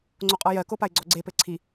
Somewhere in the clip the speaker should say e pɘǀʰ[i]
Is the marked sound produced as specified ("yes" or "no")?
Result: yes